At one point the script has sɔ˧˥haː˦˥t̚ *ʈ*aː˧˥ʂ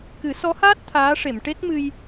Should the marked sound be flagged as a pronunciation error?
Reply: yes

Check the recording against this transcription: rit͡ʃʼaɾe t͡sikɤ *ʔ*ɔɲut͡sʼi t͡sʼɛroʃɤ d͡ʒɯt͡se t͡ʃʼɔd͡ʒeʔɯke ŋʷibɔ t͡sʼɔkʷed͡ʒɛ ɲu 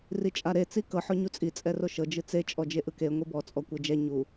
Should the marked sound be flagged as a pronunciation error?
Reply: yes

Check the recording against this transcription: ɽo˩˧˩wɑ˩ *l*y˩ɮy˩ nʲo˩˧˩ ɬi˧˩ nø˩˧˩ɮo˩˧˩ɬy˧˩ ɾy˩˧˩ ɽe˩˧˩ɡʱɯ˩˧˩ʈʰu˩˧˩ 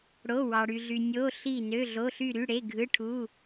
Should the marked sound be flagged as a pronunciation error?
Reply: yes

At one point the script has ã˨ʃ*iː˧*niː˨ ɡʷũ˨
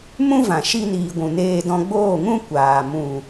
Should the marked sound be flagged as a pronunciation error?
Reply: yes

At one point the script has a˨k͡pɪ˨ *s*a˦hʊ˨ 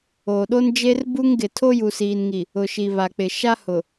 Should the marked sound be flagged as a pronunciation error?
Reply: yes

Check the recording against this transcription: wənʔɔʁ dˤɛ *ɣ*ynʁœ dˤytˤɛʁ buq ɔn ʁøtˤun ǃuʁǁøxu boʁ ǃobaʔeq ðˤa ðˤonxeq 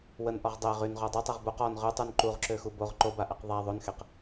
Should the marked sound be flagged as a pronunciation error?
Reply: yes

